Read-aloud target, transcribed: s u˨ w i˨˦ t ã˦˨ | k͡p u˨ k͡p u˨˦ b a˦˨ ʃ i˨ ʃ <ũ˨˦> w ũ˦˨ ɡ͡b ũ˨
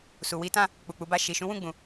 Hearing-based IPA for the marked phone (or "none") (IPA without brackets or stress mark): ũ˨˦